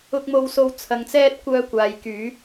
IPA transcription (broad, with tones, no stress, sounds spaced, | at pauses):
ʊ˧ k̚ m o˧ w s o˧ w t͡sʰ ɐ˨ ŋ t͡s ɛː˧ t̚ kʷ œː˧ kʷ aː˨ j k yː˨˧